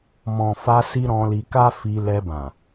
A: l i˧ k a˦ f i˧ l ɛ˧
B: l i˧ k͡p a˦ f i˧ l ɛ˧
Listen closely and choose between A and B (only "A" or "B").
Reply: A